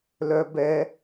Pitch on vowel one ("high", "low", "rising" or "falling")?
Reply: high